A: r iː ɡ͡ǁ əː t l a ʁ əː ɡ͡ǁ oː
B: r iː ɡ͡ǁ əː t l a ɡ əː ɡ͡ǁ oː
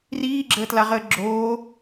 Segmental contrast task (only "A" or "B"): A